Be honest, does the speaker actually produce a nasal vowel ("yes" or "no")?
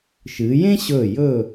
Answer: yes